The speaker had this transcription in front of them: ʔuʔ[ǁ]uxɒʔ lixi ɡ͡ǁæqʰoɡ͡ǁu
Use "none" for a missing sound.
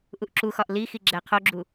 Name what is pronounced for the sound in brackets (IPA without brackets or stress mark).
ǁ